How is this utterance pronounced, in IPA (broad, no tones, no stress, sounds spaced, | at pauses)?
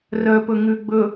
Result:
r œ p ɵ ŋ ʉ ɡ͡b ɵ